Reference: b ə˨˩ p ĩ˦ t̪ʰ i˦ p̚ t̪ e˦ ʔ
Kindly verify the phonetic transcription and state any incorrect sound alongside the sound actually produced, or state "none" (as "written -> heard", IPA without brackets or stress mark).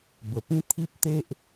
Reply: none